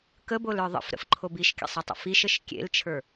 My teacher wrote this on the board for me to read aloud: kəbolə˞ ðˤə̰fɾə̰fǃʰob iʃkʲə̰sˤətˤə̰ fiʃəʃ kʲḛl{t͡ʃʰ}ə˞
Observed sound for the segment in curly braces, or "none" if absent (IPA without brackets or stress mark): t͡ʃʰ